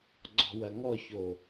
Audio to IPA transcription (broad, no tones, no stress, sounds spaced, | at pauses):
ɡ͡ǀ ɔ̤ w ɐ ŋ ɔ ç o